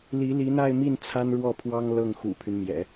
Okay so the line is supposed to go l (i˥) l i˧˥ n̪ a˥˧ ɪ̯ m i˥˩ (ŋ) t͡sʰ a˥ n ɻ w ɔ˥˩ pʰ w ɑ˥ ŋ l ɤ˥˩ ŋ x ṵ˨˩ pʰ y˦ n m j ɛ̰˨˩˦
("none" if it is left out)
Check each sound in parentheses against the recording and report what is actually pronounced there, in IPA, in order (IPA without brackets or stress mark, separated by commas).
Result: i˧˥, n